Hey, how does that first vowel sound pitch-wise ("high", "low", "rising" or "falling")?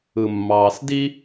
low